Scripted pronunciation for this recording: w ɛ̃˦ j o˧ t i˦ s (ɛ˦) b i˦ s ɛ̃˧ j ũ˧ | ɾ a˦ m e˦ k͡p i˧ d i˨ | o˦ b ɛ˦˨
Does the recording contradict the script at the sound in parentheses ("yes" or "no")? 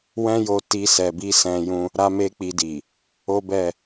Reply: yes